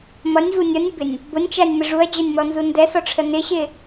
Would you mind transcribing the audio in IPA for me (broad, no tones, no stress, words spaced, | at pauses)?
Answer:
mʌnʲvu nʲʌnʲəbɪnʲ | bʊnʲt͡ʃænʲmə ʐuɐ̯d͡ʑə˞nʲmɔnzu ndɛsɔʈ͡ʂʰə nɪɕɪ